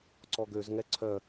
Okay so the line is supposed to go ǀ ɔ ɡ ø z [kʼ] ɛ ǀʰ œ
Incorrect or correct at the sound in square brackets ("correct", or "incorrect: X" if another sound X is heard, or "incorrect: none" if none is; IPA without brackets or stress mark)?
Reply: incorrect: ŋ